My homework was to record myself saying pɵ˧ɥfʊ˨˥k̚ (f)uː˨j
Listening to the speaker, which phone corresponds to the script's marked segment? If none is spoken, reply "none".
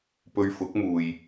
m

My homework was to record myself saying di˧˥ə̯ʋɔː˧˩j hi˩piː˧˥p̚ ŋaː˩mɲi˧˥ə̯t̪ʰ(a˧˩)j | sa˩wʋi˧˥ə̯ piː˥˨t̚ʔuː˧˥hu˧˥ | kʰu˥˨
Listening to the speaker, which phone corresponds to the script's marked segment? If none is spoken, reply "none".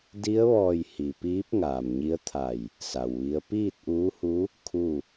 a˧˩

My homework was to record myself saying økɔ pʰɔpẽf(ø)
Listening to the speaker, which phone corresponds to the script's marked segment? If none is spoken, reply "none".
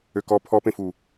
u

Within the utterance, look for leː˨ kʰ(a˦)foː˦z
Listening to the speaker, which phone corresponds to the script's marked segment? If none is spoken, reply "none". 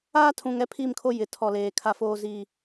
a˦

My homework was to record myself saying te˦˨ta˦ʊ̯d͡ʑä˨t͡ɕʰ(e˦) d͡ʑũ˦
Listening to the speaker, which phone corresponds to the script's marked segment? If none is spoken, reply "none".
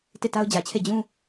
e˦˨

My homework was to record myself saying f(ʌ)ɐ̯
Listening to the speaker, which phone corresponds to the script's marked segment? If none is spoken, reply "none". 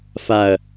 a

